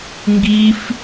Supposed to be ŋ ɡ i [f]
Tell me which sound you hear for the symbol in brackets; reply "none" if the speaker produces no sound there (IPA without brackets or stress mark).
f